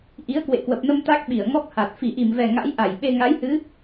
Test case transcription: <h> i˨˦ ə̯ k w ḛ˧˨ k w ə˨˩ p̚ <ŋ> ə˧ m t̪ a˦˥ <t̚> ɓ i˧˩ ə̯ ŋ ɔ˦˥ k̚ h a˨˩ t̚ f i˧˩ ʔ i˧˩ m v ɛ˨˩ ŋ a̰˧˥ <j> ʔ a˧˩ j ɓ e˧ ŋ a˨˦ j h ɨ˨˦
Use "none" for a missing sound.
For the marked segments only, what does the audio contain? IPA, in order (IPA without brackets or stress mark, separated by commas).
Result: ʔ, n, k̚, j